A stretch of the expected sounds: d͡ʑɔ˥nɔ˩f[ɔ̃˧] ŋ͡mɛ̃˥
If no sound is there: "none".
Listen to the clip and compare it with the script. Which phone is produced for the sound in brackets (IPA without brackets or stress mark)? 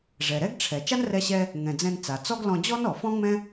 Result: ɔ̃˥